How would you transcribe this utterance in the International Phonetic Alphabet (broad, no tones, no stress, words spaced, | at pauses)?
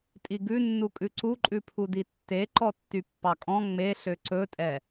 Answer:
tʼiɡʉnːukʼʉ ǀuǃʼʉpʰudi tːe ǃɔtːypːɑkʼɔ̃ ŋ͡meɬø ǀɵtʼɛ